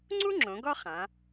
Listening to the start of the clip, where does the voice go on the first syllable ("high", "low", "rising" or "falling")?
high